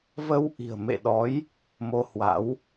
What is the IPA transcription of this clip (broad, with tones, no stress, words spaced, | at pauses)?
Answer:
və˧w ʔi̤˨˩ə̯mḛ˧˨ɗɔ˨˦j | mo˧hwa̰˧˥w